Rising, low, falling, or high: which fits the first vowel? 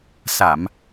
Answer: low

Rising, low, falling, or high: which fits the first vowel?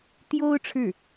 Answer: high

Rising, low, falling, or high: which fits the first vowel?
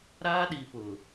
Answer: high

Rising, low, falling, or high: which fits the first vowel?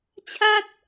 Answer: falling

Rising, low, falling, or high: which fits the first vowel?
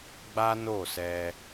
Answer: high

